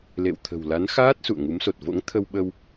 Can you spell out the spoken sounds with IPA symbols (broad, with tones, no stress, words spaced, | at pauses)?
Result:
lḛ˧˨wt̪ʰə̤˨˩wla˨˦nxaː˦˥t̚ sṵ˧˨ə̯ ŋu˨˦mso˨˩t̚ vo̰˧˥ŋt̪ʰə˧wɓə˧w